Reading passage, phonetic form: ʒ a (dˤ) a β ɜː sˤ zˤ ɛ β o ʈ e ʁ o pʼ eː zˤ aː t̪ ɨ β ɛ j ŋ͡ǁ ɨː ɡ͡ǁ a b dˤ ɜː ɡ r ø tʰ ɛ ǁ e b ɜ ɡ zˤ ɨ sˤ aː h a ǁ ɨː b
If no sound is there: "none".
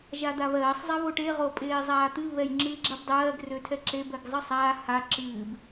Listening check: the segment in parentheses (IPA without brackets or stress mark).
d̪